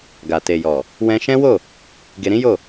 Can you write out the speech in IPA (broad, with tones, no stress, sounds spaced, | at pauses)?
ɡ a˨ t e˨ j ɔ˨ | w ɛ̃˧ ʃ ɛ̃˦ w o˦˨ | ɡ e˧ ɾ ĩ˦ j o˦˨